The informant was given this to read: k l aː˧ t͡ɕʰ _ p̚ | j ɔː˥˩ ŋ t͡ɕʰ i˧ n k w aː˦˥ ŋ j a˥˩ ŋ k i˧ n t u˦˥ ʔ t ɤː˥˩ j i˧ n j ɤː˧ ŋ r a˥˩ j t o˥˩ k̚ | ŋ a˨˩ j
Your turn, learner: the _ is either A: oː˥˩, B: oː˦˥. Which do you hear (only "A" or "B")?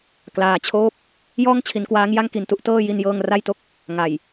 A